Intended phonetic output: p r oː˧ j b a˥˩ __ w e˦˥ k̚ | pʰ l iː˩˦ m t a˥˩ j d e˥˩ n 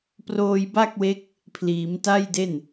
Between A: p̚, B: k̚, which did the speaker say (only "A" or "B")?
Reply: B